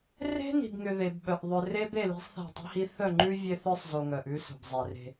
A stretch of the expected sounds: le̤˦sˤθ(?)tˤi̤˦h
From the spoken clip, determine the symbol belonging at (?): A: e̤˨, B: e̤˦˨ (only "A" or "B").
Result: B